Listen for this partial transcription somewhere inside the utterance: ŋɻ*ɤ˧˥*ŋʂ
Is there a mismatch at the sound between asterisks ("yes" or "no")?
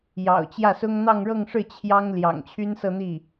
yes